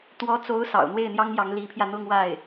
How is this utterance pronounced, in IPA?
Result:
t̪wɔ˧˥t͡so˧˥ʊ̯ sɑ̰˨˩ʊ̯n̪we˥˩ɪ̯n̪jɑ˥ŋjɑ˧˥ŋ li˧˥pʰjä˧ n̪ʊ˥˧ŋwa˥˩ɪ̯

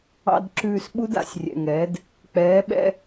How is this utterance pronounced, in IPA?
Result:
ɑ̰˨dǁʉː˨s ɓu˦da̰˨sʲrʲɛ̰˨ŋɛː˨˦d | k͡pɛː˨˦ɓɛ̰˦

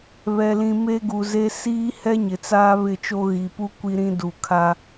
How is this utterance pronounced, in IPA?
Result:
βɛ˨lĩ˨ me˦ɡu˨ze˦ siː˦ hɛ˦ɲɪ˨t͡saː˦ βɪ˦˨t͡ʃo˦ ɣi˨pu˦ kʷi˦ɾĩ˦du˨ kʰa˦

